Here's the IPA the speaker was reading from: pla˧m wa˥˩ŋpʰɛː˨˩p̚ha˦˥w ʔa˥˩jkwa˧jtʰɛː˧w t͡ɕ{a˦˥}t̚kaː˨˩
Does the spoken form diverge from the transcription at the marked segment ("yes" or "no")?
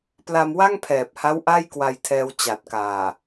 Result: yes